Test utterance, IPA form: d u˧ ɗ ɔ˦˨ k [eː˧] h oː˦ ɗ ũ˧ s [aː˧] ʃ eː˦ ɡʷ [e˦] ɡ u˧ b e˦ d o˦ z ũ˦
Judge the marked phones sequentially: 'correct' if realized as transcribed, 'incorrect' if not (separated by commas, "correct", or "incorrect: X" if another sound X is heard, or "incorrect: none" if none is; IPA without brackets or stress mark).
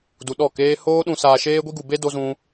incorrect: eː˦, correct, incorrect: i˦